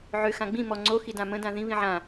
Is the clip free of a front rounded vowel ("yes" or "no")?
no